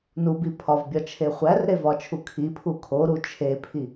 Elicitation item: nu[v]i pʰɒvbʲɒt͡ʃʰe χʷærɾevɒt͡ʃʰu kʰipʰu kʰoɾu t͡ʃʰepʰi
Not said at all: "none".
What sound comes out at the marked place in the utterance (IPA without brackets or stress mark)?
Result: b